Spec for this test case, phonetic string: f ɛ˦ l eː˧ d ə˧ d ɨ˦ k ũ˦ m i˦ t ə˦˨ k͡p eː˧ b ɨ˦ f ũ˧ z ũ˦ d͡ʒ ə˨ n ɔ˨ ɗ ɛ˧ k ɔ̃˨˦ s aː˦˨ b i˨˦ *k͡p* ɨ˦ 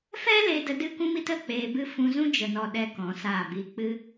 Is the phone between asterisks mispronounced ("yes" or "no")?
no